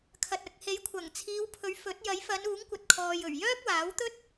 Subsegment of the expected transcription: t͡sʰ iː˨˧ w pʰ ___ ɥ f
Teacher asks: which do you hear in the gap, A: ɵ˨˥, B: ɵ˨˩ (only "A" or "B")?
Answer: A